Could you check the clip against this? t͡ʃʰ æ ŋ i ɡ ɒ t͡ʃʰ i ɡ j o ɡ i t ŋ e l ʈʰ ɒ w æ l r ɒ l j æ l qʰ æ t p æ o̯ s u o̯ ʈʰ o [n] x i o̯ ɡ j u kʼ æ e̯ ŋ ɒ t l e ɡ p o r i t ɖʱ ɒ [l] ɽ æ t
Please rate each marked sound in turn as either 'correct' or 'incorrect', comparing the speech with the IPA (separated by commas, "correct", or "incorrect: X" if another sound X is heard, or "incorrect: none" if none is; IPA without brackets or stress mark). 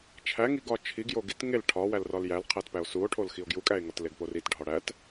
incorrect: l, incorrect: none